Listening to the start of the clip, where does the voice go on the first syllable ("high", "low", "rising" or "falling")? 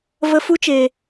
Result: high